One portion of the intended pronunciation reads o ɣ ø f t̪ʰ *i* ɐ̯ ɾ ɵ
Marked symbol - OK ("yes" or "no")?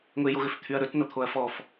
no